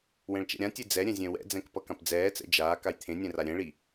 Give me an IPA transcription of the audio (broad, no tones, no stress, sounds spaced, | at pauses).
w ɛ̃ ɭ t͡ʃ ɛ̰ ɾʲ ã tʲ e d͡z ɛ ɾʲ ɛ̃ zʲ ɛ̃ w ɛ̰ d͡z ɛ̃ k p ʌ k ã p d͡z ɛː t͡s ɛ̰ d͡ʒ aː k a j t̪ʰ ẽ nʲ ɛ̃ r a ɾʲ ɛ̃ ɭ i